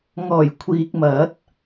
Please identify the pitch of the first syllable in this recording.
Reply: low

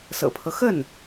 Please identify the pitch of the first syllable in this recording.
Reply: low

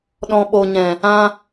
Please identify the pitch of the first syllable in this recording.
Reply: low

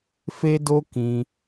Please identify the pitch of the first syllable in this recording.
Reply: high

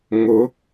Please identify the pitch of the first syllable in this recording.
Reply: rising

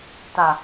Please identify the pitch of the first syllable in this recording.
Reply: low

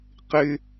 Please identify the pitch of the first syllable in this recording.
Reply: low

